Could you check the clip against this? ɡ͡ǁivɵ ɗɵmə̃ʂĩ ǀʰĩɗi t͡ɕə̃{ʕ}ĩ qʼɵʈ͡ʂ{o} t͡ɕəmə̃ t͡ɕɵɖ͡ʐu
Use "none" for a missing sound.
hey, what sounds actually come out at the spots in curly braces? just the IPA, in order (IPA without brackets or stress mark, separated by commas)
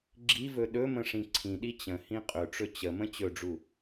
h, ɵ